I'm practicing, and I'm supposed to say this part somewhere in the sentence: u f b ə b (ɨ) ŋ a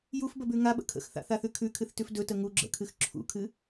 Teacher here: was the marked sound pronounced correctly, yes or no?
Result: no